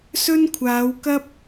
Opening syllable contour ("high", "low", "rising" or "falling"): high